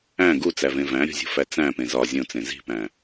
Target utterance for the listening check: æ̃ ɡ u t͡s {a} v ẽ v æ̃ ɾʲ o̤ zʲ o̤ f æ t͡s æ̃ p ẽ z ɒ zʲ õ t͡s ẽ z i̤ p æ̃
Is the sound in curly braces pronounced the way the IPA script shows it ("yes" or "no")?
no